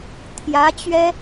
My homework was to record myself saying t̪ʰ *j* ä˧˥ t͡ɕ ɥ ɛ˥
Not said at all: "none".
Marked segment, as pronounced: j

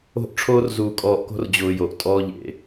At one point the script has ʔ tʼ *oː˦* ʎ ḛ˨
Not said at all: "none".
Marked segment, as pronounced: ɔː˦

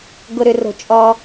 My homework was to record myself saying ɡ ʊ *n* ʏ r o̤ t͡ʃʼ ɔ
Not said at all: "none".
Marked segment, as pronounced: ɾ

